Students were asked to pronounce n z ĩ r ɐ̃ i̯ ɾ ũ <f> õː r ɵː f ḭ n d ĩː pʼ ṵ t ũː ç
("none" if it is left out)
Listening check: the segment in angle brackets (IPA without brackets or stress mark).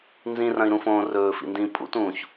f